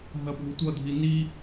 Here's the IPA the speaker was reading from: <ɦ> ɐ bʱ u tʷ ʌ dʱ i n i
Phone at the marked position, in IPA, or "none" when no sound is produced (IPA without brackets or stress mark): ɦ